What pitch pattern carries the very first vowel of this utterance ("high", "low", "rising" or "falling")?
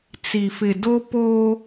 low